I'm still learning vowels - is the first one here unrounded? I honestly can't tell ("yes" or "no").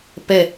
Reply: yes